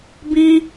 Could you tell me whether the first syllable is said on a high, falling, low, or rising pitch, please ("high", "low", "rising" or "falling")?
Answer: low